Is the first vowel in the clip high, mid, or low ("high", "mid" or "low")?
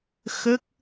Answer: mid